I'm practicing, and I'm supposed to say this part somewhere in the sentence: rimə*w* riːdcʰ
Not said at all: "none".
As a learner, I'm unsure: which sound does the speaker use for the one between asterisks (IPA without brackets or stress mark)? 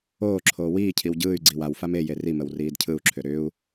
w